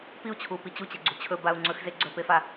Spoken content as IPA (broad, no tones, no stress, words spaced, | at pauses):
piu̯t͡ɕʰupi t͡ɕut͡ɕeɡ͡ǀu t͡ɕʰɵbau̯ ŋ͡ǀɵxze ɡ͡ǀɵpefa